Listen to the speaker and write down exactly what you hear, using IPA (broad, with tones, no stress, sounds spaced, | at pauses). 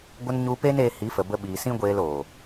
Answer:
ɡʷ ə˦ n ɲ u˧ p e˦ n e˧ h i˨˦ f ə˨ b ə˧ ɓ iː˨ s ĩ˦ ɡʷ eː˧ l oː˨